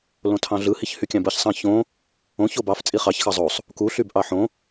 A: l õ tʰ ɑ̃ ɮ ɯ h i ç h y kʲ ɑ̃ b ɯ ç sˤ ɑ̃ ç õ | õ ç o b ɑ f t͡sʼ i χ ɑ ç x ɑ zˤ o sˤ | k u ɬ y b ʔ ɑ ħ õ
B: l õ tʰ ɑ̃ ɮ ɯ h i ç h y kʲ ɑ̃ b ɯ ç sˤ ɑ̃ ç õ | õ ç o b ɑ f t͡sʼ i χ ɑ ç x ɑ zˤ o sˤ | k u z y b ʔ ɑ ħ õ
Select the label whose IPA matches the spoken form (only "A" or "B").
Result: A